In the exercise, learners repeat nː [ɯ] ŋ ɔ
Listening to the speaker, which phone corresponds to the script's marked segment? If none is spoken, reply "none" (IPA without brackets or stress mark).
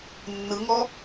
ɯ